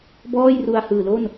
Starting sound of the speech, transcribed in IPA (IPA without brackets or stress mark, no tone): b